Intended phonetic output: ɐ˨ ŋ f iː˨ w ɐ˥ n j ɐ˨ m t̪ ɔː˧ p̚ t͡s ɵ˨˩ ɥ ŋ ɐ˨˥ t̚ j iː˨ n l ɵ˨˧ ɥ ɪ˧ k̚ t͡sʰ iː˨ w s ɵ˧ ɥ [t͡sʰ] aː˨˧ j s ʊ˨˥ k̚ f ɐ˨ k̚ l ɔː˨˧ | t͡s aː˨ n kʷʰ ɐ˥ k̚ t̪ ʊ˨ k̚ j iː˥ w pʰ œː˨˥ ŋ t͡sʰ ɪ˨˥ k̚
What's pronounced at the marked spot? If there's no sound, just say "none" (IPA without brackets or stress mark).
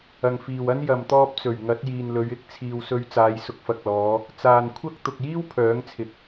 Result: t͡s